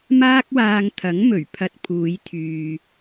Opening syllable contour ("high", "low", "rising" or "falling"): high